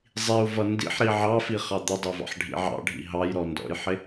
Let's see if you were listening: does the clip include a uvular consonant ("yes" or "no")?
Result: yes